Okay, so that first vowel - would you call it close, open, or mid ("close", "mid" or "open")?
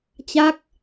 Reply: open